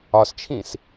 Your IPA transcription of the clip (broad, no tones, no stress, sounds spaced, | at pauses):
ɒ s t͡ʃʰ ĩ s